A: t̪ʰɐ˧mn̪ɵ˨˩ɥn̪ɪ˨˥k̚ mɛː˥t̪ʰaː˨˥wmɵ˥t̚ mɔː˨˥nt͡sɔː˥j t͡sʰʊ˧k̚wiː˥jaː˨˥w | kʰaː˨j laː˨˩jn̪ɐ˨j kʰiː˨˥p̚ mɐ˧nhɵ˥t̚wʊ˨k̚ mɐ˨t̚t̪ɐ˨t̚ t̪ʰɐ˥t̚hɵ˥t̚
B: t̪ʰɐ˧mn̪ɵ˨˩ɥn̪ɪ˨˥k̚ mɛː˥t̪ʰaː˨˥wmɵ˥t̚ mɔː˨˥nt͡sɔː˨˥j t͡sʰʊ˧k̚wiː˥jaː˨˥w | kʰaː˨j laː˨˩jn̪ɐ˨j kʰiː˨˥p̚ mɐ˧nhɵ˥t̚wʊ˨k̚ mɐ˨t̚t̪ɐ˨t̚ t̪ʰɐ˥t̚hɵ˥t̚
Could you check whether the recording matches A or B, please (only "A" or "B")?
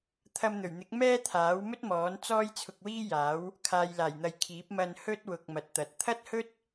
A